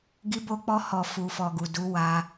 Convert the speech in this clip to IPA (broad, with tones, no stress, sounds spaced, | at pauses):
ɡ i˧ b o˧ k͡p ɔ˧ h ɔ˨ f u˨ f ɔ˨ ɡ u˨ d u˨˦ w a˧